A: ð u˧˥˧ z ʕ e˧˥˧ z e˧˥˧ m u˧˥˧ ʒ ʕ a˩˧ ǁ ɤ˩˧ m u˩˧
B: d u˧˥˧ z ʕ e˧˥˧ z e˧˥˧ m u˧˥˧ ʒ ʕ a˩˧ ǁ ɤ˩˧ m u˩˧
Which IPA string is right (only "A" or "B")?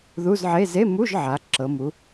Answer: A